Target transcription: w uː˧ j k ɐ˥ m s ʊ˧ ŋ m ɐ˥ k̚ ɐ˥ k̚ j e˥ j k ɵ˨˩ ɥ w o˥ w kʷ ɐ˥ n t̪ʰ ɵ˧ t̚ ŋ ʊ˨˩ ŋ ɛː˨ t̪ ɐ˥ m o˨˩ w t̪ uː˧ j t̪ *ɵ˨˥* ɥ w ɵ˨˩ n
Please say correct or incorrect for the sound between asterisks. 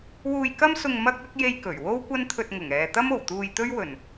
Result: incorrect: ɵ˥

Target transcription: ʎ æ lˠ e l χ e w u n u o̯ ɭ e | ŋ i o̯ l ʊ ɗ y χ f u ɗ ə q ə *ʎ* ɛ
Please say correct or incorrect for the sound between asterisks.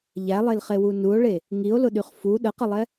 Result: incorrect: lˠ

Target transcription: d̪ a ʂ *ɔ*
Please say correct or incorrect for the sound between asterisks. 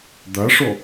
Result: correct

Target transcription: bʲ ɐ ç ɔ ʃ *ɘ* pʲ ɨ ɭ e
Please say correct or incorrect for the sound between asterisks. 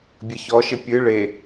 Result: correct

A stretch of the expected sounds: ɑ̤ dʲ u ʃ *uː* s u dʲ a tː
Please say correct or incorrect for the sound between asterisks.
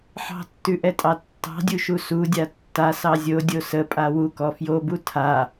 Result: incorrect: u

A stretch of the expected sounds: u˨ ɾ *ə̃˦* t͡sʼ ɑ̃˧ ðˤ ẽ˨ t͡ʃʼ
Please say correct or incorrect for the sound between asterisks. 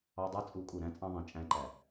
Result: incorrect: æ̃˦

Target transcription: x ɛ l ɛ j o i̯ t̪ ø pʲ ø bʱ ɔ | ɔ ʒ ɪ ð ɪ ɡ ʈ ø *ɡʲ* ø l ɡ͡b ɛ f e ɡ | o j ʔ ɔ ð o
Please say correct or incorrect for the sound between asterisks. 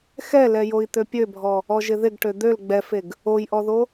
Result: incorrect: d̪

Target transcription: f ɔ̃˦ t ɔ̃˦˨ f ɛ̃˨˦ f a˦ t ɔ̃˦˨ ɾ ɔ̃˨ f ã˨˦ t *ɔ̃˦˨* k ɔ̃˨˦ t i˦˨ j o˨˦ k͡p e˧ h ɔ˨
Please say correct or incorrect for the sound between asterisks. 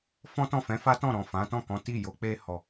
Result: correct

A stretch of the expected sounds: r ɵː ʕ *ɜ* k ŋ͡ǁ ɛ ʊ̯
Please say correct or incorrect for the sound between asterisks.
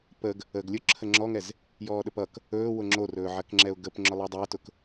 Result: correct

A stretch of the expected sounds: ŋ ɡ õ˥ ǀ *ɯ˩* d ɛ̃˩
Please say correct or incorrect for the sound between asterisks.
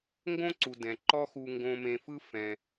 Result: incorrect: u˩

